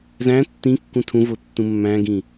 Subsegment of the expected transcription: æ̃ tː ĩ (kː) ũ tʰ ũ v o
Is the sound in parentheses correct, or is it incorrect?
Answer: correct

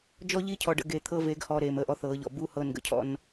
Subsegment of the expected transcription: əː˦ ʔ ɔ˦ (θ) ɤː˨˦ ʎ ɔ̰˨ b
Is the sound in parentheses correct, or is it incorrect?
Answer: correct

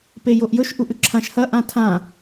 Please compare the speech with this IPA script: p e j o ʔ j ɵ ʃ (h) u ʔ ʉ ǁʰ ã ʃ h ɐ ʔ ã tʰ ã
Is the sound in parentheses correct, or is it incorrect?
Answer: incorrect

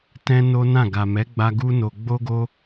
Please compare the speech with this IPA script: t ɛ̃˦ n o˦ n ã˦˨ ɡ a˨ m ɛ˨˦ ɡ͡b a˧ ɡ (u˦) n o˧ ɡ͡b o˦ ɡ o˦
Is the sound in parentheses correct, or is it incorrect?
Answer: correct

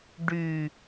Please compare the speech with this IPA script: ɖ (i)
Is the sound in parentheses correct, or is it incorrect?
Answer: incorrect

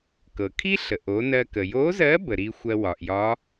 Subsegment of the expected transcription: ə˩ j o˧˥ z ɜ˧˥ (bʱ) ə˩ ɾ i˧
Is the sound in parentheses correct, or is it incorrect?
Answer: incorrect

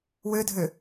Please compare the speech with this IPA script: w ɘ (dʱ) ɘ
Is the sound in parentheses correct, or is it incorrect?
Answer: correct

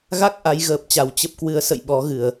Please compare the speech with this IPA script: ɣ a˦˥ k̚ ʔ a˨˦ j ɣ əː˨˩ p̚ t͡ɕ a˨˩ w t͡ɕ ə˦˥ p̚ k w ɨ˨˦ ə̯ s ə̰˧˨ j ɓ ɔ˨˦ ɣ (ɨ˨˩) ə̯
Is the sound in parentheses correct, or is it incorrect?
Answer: correct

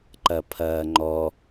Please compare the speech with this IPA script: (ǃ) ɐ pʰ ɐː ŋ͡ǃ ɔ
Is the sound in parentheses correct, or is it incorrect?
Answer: correct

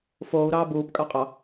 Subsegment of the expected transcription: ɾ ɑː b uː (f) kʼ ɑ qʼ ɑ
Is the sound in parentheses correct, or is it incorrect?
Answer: incorrect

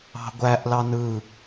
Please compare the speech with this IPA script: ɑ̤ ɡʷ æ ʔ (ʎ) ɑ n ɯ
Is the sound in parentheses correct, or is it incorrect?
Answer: incorrect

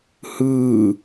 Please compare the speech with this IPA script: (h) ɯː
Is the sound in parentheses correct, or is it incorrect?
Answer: correct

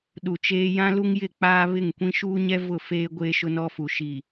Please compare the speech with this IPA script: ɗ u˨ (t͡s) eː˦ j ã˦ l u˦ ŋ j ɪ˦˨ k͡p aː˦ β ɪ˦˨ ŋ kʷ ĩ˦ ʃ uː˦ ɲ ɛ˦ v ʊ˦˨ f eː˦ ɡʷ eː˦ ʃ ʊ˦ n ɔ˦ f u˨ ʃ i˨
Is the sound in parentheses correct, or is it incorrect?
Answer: incorrect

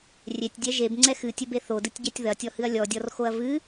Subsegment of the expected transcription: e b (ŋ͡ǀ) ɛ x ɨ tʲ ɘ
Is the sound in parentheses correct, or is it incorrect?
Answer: correct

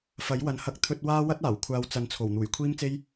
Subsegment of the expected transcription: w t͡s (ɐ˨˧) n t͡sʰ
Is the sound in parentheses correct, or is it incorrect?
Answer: correct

